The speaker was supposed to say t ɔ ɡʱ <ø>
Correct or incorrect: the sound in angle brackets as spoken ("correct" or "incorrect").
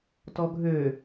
correct